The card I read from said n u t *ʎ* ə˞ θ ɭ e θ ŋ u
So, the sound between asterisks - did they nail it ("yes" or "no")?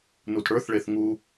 no